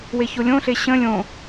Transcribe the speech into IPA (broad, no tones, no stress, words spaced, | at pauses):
weçolʲõɬe ɕə̃ lʲõ